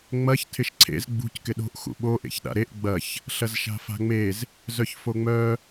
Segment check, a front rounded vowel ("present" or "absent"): present